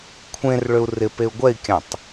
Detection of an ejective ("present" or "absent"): absent